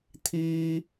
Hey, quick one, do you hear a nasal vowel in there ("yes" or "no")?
no